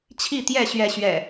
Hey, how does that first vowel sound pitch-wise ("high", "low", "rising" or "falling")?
falling